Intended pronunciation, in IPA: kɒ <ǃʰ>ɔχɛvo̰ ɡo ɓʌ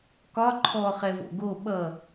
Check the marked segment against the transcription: correct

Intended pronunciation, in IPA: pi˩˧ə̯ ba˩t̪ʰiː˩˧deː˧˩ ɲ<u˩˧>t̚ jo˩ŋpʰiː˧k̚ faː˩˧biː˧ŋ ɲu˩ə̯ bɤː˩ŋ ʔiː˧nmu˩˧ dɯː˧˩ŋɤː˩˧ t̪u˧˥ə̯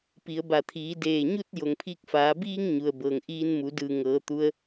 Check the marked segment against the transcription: incorrect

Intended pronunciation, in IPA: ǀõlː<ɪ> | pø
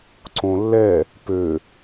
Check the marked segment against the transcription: incorrect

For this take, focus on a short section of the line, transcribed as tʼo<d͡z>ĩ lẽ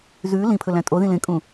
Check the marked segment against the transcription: incorrect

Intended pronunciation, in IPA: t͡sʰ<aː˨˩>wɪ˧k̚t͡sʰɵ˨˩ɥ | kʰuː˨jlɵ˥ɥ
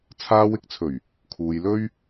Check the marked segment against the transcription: incorrect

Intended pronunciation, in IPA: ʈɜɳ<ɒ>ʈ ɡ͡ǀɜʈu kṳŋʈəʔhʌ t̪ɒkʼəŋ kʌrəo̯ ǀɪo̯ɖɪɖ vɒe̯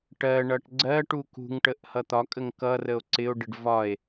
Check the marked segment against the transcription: incorrect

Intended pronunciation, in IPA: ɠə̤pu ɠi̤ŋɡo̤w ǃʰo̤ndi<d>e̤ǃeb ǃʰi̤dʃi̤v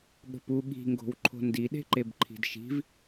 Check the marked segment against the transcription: incorrect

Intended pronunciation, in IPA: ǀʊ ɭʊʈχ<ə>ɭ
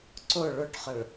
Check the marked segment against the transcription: correct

